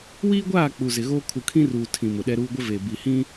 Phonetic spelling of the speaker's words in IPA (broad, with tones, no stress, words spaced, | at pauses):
wiː˦ɡʷaː˦˨ k͡pu˨zɪ˨ɣoː˦ kʰu˨kʰĩ˦ruː˨ tʰĩ˨mʊ˨ɗɛ˦ɾuː˦ ɡʷɪ˦ve˨ bi˨hĩ˦